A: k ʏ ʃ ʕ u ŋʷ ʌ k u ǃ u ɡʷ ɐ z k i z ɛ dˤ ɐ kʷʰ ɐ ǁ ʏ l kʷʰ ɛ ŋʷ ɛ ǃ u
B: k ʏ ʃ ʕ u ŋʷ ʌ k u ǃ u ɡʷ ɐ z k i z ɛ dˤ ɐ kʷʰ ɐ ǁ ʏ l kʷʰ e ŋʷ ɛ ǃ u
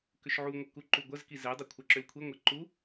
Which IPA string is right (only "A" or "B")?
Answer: B